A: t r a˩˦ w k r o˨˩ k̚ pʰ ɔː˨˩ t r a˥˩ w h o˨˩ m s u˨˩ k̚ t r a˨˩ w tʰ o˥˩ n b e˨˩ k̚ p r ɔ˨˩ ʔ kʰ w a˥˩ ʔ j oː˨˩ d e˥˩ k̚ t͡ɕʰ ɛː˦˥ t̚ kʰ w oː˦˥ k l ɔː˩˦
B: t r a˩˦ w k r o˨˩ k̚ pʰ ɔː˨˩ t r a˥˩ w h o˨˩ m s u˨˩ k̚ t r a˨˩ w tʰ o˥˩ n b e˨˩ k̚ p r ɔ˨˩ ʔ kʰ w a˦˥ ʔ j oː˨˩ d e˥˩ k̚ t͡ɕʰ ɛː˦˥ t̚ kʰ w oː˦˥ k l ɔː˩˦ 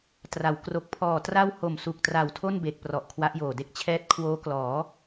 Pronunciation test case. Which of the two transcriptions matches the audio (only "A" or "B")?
B